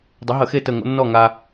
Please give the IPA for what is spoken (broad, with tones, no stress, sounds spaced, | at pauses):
dˤ ɪ˨˥ ɦ ə˧˩˧ x e˥˨ t ə˥˨ ŋ o̰˥ nː ɔ˥˨ ŋ a˧